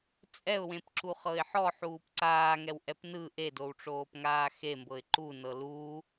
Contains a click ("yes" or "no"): yes